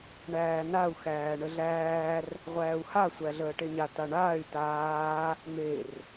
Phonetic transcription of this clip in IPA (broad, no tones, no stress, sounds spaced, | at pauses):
ɳ æː n a u̯ x æː ɳ ə ɮ æː r | ʁʷ æː u̯ h a sʷ æ ɮ əː ʈ e ɲ a t a ɳ aː y̯ t aː | m e r